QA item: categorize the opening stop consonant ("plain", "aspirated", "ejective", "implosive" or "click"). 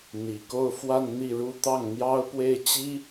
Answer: plain